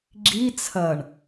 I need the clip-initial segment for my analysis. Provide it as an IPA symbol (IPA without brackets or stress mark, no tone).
ɡ͡ǁ